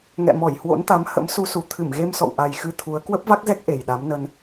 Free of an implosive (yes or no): no